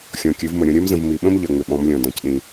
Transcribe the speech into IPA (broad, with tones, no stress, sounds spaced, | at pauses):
xʲ ɔ̃˨ kʲ ɨ˨˦ v m ə˨ ɾʲ ɔ̃˦ ɾʲ ɜ˦ m z ə̃˨ v m i˨ ɓ ə̃˦ m ʎ ɜ˨ ŋ͡m ʏ˨ ɓ ɔ̃˨˦ m lʲ ɔ̃˨ d ɔ̃˨ c ɗ ĩ˦